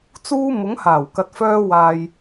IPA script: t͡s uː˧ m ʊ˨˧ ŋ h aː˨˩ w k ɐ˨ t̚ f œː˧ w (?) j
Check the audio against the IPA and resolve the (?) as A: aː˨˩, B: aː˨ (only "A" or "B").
B